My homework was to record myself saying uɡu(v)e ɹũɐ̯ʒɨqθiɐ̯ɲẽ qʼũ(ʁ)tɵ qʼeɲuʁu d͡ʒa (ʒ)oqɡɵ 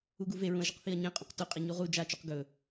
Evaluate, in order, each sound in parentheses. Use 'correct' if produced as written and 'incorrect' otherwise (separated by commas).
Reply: correct, incorrect, incorrect